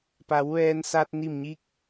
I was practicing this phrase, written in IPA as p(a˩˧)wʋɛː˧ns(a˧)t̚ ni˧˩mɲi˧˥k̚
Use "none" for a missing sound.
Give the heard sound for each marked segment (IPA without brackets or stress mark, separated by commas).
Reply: a˩˧, a˧